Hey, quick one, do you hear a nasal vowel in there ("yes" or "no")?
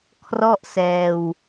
no